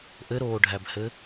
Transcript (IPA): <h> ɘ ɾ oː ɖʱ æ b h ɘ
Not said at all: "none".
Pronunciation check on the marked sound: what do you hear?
ʔ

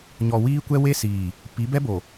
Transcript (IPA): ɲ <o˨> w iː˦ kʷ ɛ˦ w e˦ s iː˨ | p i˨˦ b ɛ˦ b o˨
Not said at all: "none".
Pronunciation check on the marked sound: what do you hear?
ɔ˨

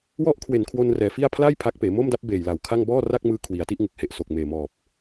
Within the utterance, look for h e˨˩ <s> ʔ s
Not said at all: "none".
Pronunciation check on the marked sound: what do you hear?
none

